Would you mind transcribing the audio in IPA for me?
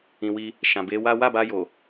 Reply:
ĩ˨ w i˧ | ʃ ã˨ b e˨˦ w a˦ w a˦˨ b a˧ j o˨

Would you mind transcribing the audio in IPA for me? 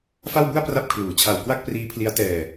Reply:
f a˥˩ w b u˥˩ a̯ p r a˦˥ p̚ kʰ l uː˩˦ t͡ɕʰ a˨˩ w k w a˥˩ k̚ p r iː˦˥ pʰ l i˦˥ a̯ t ɛː˧

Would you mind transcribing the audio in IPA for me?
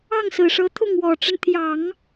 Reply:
ɑ˥˩ ŋ s ɹ̩˨˩ ʂ ɤ˧˥ t̪ʰ ʊ˥˩ ŋ w ɔ˨˩ ʈ͡ʂ ə˦ n t̪ʰ j ɑ˨˩˦ ŋ

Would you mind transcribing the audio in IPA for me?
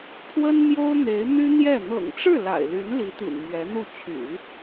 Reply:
pʰ w ə˥ n m j o˥ ʊ̯ n̪ e˧˥ ɪ̯ n̪ y˥ n̪ j ɛ˥˩ n̪ ɤ̰˨˩ ŋ ʈ͡ʂ ɻ̩˥˩ l a̰˨˩ ɪ̯ l y˧˥ n l i˧˥ t̪ ḭ˨˩ n m ɥ ɛ˧˥ n̪ u˥˩ t͡ɕʰ y̰˨˩˦

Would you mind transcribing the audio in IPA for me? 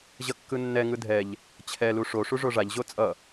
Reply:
ʑ ʌ kː ɯ nː ɛ ŋ ɯ dʱ ɛ ʎ | t͡ɕʰ ɛ l u ʂ o ʂ u ʐ o ʐ a ʎ ʑ o t͡sʼ ʌ

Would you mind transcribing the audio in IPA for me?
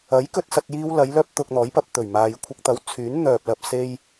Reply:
ɐ˨˥ j k ɵ˧ t̚ s ɐ˨ t̚ j iː˧ w l ɐ˨˧ j l œː˥ p̚ t̪ ʊ˧ k̚ n̪ ɔː˨˥ j p ɐ˧ p̚ t̪ ɵ˨˩ ɥ m aː˨ j kʷʰ ɪ˧ k̚ t̪ ɐ˨˥ w t͡sʰ yː˨˥ n n̪ œː˨ p̚ l ɐ˨ p̚ s e˧ j

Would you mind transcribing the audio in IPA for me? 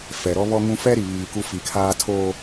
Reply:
f ɛ˨ ɾ ɔ˦ β ɔ˦ ŋ ũ˦ f ɛ˦ ɾ i˨ β iː˨ k u˦ f i˨ kʰ aː˦ tʰ o˦

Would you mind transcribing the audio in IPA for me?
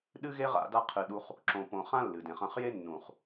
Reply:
ɗ ɨ˦ ɣ e˦ ʁ a̰˧ d a˦ qʰ ɨ˧ ɗ u˦ χ | ǁ õ˧ p õ˧ χ ã˦ lː ɨ˨ d ẽ˨ χ ɐ̃˧ χ j e˦ nː ũ˨ χ

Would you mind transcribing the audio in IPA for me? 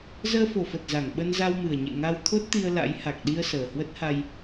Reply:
z əː˧ f o˨˩ f ə˨˩ t̚ z a˧˩ ŋ ɓ ə˧ n z a˧ w m ɨ˨˩ ə̯ ɲ ḛ˧˨ ŋ a˧ w t̪ʰ o˦˥ t̚ t̪ i˧ ə̯ l a̰˧˥ j h a˨˩ k̚ ɗ i˧ ə̯ s əː˨˩ h w ə˦˥ t̚ h a˧ j

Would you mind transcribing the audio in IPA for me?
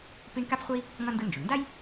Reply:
p i˥ ɳ k a˥ p χʷ ʌ˥ i̯ | ŋ ʌ˥ n d ɯ˦ n d͡ʒ o˩ ɳ n d a˥ j

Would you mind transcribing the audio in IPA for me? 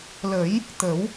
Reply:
l ə˨˩˦ j | t̪ ə˨˩˦ w

